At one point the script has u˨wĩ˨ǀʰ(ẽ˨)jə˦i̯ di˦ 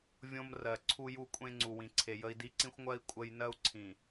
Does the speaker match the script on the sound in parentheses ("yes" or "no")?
no